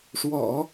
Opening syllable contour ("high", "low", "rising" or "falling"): low